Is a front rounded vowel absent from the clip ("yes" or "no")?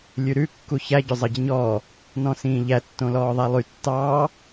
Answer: no